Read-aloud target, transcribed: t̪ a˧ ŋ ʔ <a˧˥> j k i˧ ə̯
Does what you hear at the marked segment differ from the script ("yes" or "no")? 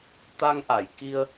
yes